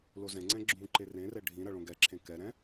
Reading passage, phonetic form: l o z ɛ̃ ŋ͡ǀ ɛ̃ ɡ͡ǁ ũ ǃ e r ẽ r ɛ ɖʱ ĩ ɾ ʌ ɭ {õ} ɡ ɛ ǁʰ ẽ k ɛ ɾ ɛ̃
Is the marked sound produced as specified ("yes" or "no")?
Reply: yes